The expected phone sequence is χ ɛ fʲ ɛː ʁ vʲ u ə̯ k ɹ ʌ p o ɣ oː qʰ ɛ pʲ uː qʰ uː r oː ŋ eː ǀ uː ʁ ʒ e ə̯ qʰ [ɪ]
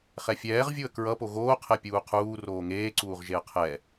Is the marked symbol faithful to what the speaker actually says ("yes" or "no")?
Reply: no